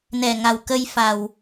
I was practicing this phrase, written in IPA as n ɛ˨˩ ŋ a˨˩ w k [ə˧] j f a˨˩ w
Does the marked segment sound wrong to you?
no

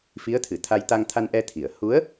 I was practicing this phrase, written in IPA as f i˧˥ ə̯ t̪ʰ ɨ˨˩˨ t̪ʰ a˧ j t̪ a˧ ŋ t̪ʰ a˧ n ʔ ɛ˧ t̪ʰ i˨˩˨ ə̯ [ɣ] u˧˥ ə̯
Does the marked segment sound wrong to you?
yes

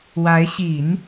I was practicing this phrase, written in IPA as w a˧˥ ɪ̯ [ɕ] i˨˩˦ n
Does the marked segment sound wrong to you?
no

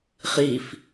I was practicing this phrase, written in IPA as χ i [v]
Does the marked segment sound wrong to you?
yes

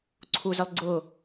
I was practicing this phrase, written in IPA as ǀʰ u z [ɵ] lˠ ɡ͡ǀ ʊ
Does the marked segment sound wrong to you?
yes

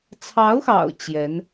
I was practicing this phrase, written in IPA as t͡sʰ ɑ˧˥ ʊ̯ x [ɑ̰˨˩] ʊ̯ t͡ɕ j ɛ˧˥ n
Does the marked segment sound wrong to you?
no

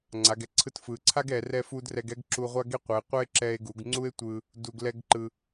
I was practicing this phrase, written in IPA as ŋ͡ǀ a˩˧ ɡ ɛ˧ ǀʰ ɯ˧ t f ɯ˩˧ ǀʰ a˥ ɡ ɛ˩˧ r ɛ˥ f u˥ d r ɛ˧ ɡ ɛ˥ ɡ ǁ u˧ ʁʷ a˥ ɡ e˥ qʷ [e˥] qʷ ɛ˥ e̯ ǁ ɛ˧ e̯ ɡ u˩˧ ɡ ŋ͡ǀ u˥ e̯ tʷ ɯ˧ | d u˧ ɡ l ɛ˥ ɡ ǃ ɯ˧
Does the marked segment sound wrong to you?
yes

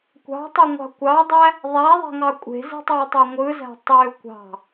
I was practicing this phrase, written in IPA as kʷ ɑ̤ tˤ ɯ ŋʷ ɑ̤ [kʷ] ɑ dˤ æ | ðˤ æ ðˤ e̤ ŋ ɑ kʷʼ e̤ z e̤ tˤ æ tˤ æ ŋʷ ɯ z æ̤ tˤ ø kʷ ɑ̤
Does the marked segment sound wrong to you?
no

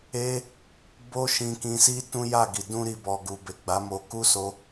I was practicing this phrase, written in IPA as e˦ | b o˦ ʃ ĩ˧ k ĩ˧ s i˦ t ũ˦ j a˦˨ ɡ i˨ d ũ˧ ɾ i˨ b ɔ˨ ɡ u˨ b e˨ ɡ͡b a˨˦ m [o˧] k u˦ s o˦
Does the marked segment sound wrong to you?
no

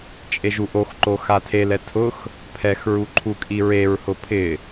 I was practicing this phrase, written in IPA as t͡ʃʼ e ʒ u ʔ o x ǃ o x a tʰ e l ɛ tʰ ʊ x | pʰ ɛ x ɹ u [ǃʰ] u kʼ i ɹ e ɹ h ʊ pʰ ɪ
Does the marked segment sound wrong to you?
no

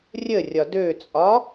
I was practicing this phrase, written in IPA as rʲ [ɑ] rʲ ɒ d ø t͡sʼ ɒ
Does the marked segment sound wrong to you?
yes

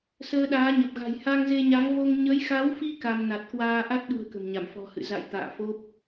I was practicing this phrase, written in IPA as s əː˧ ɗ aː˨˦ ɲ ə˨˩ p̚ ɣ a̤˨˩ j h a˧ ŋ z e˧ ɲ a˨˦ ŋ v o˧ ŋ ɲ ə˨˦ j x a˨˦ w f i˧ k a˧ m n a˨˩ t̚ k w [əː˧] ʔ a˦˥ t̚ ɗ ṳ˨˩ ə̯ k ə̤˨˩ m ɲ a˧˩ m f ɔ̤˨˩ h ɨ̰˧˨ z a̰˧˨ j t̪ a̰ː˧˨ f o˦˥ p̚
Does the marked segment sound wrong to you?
yes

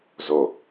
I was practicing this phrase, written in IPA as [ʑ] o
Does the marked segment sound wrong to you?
yes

